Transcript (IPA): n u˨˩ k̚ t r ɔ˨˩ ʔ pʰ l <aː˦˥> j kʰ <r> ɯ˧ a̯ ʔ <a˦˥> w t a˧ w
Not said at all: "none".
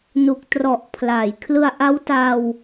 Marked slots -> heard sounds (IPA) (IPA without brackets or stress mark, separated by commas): aː˩˦, l, a˦˥